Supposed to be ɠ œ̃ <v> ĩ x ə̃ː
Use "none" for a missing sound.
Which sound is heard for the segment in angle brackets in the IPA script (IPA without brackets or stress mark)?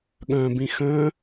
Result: b